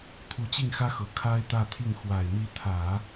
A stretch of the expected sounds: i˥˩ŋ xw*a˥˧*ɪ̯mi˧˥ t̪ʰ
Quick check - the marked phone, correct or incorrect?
incorrect